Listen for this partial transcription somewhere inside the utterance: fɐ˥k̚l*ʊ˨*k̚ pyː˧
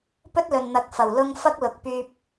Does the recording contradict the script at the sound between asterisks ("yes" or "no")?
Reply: no